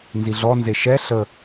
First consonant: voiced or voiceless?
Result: voiced